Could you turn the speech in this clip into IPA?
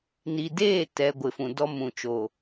n i˨ d eː˦˨ t ɛ˨ ɡʷ ɪ˨ f ũ˨ d ɔ˦ m ũ˨ t͡ʃ o˨

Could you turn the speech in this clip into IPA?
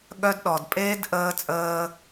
ɠ œ˦ d ɗ ɔ˨ d pʼ eː˦ d ʔ əː˧ t͡sʼ əː˧

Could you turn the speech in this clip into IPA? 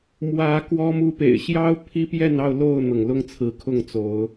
m w ä˨˦ k w ɔ˦ m u˦ p ḛ˨˩ ɪ̯ ɕ j ɑ˦ ʊ̯ pʰ i˦ p j ɛ˥˨ n ɑ˥˨ ʊ̯ l o˥˨ ʊ̯ n̪ ɤ˩ ŋ l ʊ˦ ŋ t͡sʰ ɹ̩˨˦ kʰ ʊ˥˨ ŋ t͡s o˨˦ ʊ̯

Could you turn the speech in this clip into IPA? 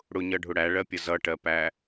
ɽ ʊ ɲ ʌ ɖʱ ʊ ɽ æ ɭ ɜ pʲ ʌ z ʌ ʈ ɜ p æ

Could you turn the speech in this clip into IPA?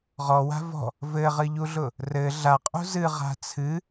ʁ ɔ w a̤ v ɔ̤ | v ɘ ʁ ɨ ʎ u ɮ ʊ | r ɘ ɮ a qʼ ṳ z ɨ ʁ a̤ t͡sʰ ɨ

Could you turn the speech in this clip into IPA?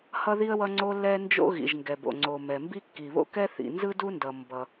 h ʌ˥ ð i˥ ə̯ w ʌ˥ ŋ͡ǀ o˥ lː ɛ˥ n d͡ʒ o̰˥ ɣ ḭ˩ ʒ ŋ ɡ ɛ˩ b o̰˩ ŋ͡ǀ o˩ m ɛ˩ m b i˥ kː i˩ β o̰˥ k ɛ˥ θ ḭ˩ n z ɯ˥ d u˥ n d ʌ˩ m b ʌ˩

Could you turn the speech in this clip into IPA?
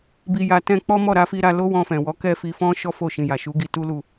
b i˧ j a˧ t ɛ̃˧ k͡p ɔ˦ m ɔ˦˨ ɾ a˧ f i˧ ɾ a˧ l o˦ w ɔ̃˧ f ɛ̃˨ w ɔ˨˦ k ɛ˦˨ f i˧ f ɔ̃˦ ʃ ɔ˦ f o˦˨ ʃ ĩ˨ j a˨ ʃ u˨˦ ɡ i˧ t u˦ l u˦˨

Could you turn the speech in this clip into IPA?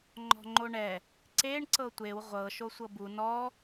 ŋ͡ǃ ɔ̤ ŋ͡ǃ o ɳ ɛ | ǀ e ɳ ǀ ɤ tʷ e w ʁʷ ɤ ʃ o sʷ ɤ b u n ɔ

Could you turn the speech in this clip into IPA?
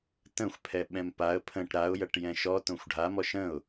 t ə̃ xʷ pʰ ɛ ɓ ɛ̃ m p a ə̯ pʰ ə̃ ʈ ɾ a ʊ̯ j ɐ ʈ j ɛ̃ ʃ ɔ t õ xʷ ɖʱ a m ɔ ʃ ə̃ ʊ̯

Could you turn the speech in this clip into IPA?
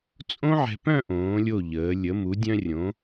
t͡sʼ õ˥ ʕ ɛ̤˧ p œ̃˥˧ ʔ õː˩˧ lʲ o˧˩ ʎ əː˩˧ lʲ ə˩˧ m u˩˧ dʲ œ̃˧ rʲ õ˩˧

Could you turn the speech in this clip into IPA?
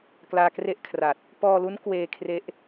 k l aː˧ k r e˥˩ ʔ kʰ r a˨˩ t̚ | p ɔː˧ l u˦˥ n k w eː˧ kʰ r e˦˥ ʔ

